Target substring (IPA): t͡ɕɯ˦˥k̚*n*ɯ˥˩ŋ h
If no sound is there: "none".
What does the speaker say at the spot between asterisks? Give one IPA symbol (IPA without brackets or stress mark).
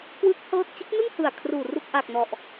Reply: n